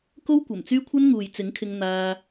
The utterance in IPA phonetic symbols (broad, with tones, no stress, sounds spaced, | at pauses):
k o˥ w kʷ ɐ˨˩ m t͡s yː˥ kʷʰ ɐ˥ n ŋ uː˨ j t͡s ɪ˨˥ ŋ kʰ ɪ˧ ŋ n̪ aː˧